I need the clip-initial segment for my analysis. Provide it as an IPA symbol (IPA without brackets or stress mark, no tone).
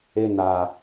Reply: e